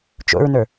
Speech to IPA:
t͡ʃ o̰ ɹ n ə˞

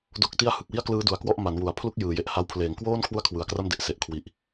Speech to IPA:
d o˦˥ k̚ t i˥˩ a̯ h ɯ˨˩ k̚ w i˥˩ a̯ k l ɯː˦˥ d u˩˦ a̯ k w ɔ˥˩ ʔ m a˩˦ n w u˩˦ a̯ pʰ l u˥˩ k̚ j ɯː˩˦ j e˨˩ ʔ h a˧ w pʰ l eː˩˦ ŋ k w oː˥˩ n kʰ w u˥˩ a̯ kʰ w ɯ˨˩ a̯ k r a˥˩ m d e˨˩ ʔ s e˨˩ ʔ kʰ w i˨˩ ʔ

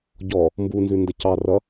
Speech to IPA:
ɟ ɔ | m b u n z ʉ n d ə c ɑ r ʌ

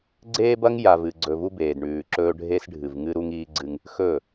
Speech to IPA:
ɡ͡ǀ eː˦ b ɐ˦ ŋ j a˨ v ɨ˨ ɡ͡ǀ ɵ˨ v u˦ b eː˨ d ɳ ʉː˨ ǁ ɵː˦ ɖʱ e˦ s ɖʱ ɨ˨ v ŋ ɨ˦ ɾ u˦ ŋ iː˦ ɡ͡ǀ ɨ˦ ŋ | x ɵː˦˨

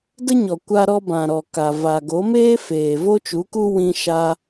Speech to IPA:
d ə˦ ɲ ɔ˨ kʷ a˧ ɾ ɔ˧ b ã˨ ɾ ɔ˨ k a˨ v a˨ ɡ o˨˦ m eː˦ f eː˨ v o˦ t͡ʃ u˨˦ k u˦ w ĩ˧ ʃ a˧

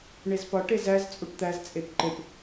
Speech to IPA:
ɳ e z p ɒ ʈ e z æ z t͡sʼ u ʈ t̪ æ z t͡sʼ e p ǃ e p

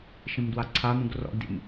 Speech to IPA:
ʃ ĩ m d w a ǀʰ a m ũ ɡ r ɔ̰ ɡ d ḭ m

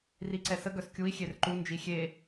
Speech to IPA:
r i ǀ ɛ s ə ɡ œ s kʲ u i̯ xʲ e r ǃ u n d͡ʒ i xʲ e

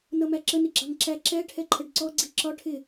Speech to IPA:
n ʌ m æ ǁ ə n ɪ ɡ͡ǁ ɑ ŋ ǁ æ ǁ ɛ ʈʰ ɛ ǃʰ ə ɖ ǀ ɔ ɡ͡ǀ i ǁ ɒ ʈʰ ɪ

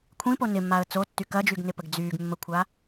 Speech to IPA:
kʷʰ ĩ p o n ɪ mː a ə̯ t͡s o tː y k ɐ d͡ʒ y ɡ n ɪ p ə ɡ d͡z yː ɡ mː ə kʷʰ a

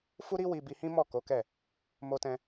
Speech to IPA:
f u˦ ɾ i˦ w i˧ b i˧ h ĩ˦ m ɔ˦˨ k o˨˦ k ɛ˦˨ | m o˧ t ɛ̃˧

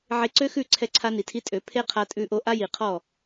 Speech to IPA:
ʕ e˧ ǀ ø˦ x ʉ˦˨ ǀʰ ɛ˧ ǀʰ a˧ n i˨ tʰ i˧ tʼ ø˨˦ pʰ e˦ qʰ a˧ tʼ ʉ˧ ʔ o˧ ʔ a˦ j i˨ qʰ ɔ˦˨

